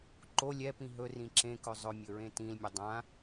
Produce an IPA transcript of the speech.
ǃ o lʲ ɛ p ĩ ɦ ɵ r ĩ ǁ ẽ k ɵ zˤ ɵ mʲ ɵ ɹ ẽ t ĩ l mʲ ɵ dˤ ã

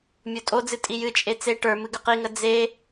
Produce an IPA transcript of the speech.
mʲ o tʼ o d͡z ɨ tʼ i j ɨ t͡ʃʼ e t͡s e ʈ ə˞ m ɨ ɡ ʏ q i ŋ ə d͡z e

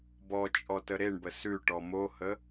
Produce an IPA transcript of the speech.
b ɔ t͡ʃʼ ɔ t ə ɾ e ɳ b ə s ʉ ʈ ɔ m o h ə

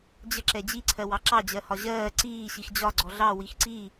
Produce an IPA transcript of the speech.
d͡ʑ ə ǁ ɛ d͡ʑ i ǀʰ ɜ w ɑ ǁ ɑ d͡ʑ ɜ h ɒ ʑ ɜː ǀ iː ɕ i x d͡ʑ ɒ ɡ͡ǀ ɔ ɮ ɑ w i x ǀ i

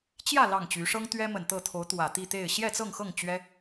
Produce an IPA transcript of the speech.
t͡ɕ j ä˥˨ l ɑ˥˨ ŋ t͡ɕ y˨˦ ʂ ɤ˦ ŋ t̪ ɥ ɛ˦ m ə˨˩ n t̪ ɤ˥˨ t̪ʰ o˨˦ ʊ̯ t̪ w ä˨˩ t̪ i˥˨ t̪ e˥˨ ɪ̯ ɕ j ɛ˥˨ t͡s ɤ˥˨ ŋ x ɤ˥˨ ŋ t͡ɕ ɥ ɛ˦

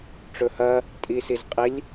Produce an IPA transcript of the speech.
ʈ͡ʂ ɵ h ɐ | tʼ i s i z qʼ i lʲ

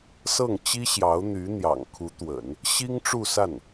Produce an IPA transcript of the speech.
s ɤ˥˩ ŋ t͡ɕ i˥ ɕ j ɑ˧˥ ʊ̯ n̪ y˧˥ n̪ j ɑ̰˨˩ ŋ kʰ u˧˥ t̪ w ə̰˨˩˦ n | ɕ i˥ ŋ ʈ͡ʂ u˥˧ s a˥˩ n

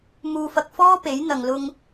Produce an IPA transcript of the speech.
m uː˧ f ɐ˧ k̚ f ɔː˥ p e˨˥ j n̪ ɐ˨ ŋ l ʊ˧ ŋ

